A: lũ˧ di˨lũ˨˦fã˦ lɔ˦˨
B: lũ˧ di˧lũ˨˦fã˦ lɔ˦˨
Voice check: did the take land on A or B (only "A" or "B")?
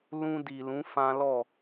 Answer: A